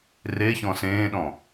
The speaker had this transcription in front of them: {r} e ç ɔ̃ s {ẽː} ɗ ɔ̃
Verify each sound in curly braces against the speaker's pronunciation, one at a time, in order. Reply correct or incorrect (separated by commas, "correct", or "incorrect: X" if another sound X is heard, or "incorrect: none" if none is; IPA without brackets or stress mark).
correct, correct